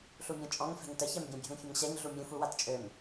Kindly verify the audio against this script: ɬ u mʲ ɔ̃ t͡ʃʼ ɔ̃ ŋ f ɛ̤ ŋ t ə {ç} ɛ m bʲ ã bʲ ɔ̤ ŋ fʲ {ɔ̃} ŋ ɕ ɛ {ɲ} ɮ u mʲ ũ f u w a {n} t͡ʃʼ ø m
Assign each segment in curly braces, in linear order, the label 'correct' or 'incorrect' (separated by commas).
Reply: correct, incorrect, correct, incorrect